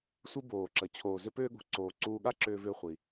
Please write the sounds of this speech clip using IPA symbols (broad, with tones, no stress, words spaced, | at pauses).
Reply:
sʷi˧ boː˩ǁə˩ t͡ɕʰoː˩zʏ˧pʏː˧ɠṳ˩ ǀoː˩ ǀuː˧ɠa˥ǁʏː˧ vʏː˧χʷi˩